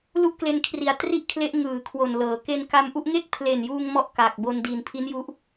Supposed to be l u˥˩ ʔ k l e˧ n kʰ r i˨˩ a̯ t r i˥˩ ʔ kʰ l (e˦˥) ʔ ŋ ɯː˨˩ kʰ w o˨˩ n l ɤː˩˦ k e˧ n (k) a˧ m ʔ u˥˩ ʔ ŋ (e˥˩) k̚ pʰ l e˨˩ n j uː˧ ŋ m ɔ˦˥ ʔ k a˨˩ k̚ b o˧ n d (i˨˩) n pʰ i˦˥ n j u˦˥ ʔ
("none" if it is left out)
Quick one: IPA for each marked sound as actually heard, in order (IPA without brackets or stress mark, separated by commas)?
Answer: e˦˥, k, e˥˩, i˨˩